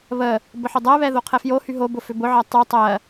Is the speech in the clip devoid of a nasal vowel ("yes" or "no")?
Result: yes